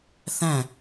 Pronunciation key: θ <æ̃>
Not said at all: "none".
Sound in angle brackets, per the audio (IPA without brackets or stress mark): æ̃